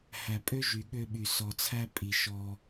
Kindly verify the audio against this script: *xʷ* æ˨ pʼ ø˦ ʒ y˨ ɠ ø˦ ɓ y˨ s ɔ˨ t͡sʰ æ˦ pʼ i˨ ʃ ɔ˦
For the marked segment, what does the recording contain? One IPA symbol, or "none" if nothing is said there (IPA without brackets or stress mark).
h